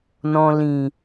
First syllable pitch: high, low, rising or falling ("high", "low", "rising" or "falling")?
low